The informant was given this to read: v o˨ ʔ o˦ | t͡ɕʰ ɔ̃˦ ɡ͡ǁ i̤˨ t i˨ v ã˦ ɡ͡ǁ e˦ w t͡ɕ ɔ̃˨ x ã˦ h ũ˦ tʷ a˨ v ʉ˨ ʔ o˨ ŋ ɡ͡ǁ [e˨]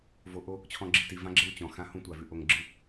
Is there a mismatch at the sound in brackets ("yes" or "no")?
yes